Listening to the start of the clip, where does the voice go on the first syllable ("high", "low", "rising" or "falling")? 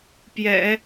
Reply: low